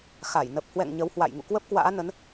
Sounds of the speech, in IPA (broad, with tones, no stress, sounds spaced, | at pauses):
x a˧˩ j n ə˨˩ p̚ h w ɛ̰˧˨ ŋ ɲ ə˨˦ w h w a̰˧˨ j ŋ ṵ˧˨ k w ə˦˥ p̚ k w a̰ː˧˥ n ə˨˦ n